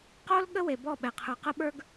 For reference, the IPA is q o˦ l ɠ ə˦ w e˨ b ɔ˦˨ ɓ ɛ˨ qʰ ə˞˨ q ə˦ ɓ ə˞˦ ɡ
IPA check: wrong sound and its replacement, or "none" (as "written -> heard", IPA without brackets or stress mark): none